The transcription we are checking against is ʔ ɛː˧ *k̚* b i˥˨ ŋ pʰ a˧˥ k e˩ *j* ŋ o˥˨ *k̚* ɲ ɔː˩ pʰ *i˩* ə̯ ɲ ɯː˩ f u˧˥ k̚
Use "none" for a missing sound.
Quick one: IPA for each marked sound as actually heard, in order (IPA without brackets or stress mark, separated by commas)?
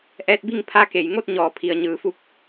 t̚, j, t̚, i˩